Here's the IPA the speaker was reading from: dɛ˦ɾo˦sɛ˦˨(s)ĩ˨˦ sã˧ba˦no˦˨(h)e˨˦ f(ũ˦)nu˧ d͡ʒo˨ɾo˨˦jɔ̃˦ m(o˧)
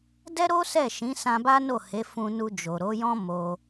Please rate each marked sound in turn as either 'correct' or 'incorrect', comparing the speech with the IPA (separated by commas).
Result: incorrect, correct, incorrect, correct